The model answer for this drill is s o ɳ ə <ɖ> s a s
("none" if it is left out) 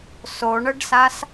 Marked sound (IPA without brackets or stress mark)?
ɖ